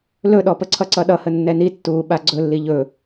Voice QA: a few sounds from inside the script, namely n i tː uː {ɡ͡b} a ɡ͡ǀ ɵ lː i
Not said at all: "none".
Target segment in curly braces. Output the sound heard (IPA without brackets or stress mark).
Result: ɓ